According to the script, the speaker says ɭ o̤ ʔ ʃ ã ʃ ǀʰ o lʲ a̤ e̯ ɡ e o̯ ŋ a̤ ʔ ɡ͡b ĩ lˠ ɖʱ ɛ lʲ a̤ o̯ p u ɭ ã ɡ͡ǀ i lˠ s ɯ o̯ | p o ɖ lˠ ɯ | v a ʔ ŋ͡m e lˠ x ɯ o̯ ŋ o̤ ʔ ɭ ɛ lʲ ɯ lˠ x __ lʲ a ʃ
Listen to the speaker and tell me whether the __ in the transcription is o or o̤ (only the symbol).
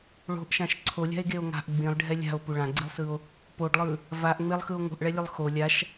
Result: o